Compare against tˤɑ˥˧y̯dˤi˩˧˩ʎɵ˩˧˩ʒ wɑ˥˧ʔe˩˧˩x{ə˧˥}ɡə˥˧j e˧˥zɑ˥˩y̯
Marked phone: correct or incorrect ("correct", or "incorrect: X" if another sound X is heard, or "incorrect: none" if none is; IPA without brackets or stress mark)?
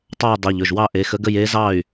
correct